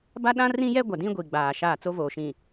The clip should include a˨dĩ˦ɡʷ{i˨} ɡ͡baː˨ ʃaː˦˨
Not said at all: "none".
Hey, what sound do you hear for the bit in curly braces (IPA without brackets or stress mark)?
i˨